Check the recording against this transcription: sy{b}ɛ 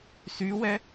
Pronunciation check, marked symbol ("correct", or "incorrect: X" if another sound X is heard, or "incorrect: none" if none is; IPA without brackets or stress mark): incorrect: w